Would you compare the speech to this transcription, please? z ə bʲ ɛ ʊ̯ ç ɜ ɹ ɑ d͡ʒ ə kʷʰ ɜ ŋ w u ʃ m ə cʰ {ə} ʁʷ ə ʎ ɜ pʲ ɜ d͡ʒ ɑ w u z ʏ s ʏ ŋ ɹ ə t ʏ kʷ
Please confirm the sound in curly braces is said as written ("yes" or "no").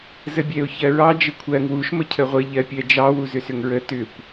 yes